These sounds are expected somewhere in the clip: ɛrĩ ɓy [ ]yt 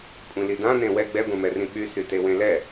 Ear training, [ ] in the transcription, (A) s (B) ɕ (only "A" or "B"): A